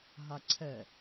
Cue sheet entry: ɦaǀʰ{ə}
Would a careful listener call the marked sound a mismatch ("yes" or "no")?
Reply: yes